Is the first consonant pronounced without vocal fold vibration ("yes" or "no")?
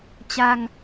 yes